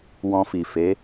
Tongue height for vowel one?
mid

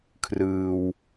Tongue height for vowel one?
high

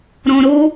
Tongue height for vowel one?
mid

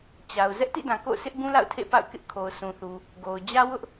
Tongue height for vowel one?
low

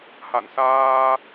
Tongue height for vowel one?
low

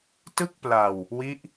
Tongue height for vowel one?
high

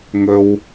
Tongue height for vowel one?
mid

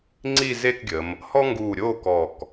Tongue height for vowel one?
high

